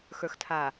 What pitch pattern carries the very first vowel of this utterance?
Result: low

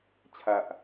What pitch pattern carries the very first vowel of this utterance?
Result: low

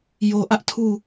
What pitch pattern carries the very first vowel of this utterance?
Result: low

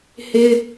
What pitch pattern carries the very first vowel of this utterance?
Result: high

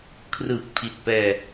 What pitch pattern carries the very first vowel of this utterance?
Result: low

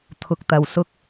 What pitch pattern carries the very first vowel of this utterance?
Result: low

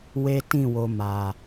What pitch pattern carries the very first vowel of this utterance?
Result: high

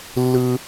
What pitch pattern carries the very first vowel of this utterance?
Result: high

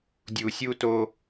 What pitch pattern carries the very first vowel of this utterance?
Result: low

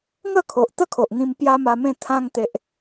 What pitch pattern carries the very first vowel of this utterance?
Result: falling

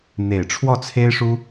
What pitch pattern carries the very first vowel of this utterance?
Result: low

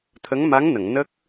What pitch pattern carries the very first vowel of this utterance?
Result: rising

